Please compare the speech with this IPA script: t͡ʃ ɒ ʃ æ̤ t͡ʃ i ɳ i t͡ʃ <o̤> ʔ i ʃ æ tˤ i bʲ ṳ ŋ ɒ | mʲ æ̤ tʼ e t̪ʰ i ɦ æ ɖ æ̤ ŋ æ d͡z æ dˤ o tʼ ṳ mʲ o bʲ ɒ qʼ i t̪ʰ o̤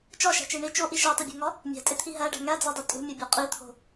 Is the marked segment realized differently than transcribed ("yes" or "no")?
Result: yes